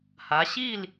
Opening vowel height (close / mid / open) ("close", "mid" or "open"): open